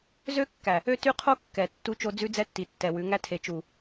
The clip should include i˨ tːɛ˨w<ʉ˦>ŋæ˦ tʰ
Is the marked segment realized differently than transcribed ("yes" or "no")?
yes